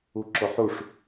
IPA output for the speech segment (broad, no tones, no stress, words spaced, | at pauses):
uǁoħuʂ